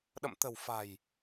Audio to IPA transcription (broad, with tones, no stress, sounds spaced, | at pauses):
ɗ ə̰˧˨ m t̪ ə̤˨˩ w f a̤˨˩ j